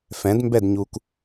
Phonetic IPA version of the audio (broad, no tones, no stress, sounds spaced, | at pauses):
f ɛ̃ d m b ɛ d ɲ u k